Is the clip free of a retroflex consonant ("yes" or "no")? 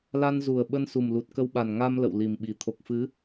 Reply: yes